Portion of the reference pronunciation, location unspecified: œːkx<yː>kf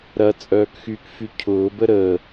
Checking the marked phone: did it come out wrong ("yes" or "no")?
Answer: no